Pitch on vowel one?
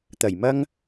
low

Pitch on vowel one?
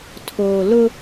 low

